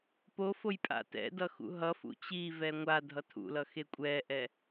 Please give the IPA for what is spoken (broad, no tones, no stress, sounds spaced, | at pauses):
p o f o j pʼ a̰ t ɛ̰ d ʌ x ṵ ɦ ʌ f ṵ t͡ɕ i v ɛ ŋʷ a dʱ ʌ tʰ ṵ l ʌ x e kʷʼ ɛ ʔ ɛ